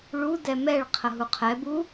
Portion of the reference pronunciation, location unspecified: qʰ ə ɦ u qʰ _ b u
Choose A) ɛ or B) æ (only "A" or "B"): A